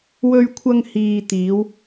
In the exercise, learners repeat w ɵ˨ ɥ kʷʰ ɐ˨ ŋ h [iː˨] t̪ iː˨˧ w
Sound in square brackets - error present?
no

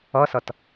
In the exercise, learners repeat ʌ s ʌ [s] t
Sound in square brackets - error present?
yes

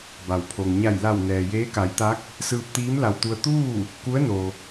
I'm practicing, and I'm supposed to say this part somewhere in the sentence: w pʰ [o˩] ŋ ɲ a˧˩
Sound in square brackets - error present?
no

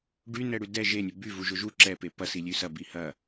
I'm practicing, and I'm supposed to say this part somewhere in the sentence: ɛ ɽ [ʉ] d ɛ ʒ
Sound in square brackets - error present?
no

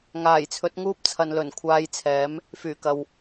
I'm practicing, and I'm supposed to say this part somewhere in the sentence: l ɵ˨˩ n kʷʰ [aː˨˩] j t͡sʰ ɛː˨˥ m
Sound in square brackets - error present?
yes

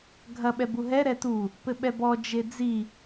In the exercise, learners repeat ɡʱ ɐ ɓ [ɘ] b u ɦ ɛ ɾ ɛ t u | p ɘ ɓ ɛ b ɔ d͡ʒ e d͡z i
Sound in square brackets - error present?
yes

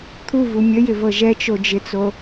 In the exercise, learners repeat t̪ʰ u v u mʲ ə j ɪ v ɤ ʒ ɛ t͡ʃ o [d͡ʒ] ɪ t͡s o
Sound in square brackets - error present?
no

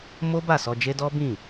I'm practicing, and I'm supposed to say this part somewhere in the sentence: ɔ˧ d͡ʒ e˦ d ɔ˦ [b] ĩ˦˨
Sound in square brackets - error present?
no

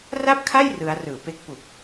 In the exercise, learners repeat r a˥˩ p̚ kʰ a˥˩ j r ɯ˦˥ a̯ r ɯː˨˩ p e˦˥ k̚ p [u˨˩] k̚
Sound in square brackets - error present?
no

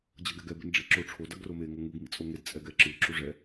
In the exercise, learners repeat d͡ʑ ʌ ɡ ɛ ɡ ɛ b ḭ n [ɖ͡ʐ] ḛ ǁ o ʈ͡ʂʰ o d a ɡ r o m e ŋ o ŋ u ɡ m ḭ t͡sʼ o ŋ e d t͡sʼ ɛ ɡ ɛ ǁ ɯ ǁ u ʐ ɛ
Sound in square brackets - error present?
no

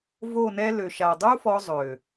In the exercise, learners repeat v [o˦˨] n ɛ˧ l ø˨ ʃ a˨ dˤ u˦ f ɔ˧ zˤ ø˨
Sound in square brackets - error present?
no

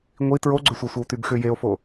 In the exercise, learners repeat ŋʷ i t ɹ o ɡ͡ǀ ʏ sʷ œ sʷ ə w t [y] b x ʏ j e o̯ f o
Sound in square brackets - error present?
no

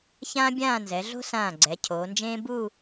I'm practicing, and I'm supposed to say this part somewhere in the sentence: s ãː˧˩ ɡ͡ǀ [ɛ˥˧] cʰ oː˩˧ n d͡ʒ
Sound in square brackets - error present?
yes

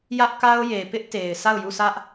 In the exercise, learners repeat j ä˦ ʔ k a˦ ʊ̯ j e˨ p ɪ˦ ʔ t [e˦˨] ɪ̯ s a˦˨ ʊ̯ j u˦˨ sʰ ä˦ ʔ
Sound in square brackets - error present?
yes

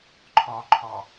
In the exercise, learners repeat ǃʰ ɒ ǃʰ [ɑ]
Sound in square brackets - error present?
yes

